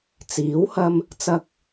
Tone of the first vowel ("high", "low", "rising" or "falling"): rising